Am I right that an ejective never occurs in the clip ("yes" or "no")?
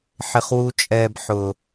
no